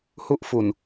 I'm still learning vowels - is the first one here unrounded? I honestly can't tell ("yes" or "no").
no